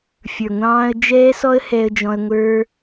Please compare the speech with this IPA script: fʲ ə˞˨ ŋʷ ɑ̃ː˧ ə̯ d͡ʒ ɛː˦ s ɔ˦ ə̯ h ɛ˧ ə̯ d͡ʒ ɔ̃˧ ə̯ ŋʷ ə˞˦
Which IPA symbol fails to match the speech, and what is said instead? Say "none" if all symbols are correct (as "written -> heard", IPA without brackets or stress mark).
none